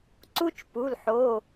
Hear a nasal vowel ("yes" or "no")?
no